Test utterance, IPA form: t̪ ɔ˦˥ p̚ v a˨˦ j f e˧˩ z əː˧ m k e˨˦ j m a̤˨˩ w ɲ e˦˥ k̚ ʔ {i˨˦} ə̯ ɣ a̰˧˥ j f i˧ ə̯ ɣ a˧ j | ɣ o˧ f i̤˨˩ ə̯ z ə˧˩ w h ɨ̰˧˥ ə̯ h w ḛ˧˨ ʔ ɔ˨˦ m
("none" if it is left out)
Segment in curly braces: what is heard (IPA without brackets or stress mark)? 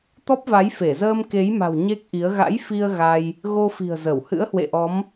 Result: i˨˦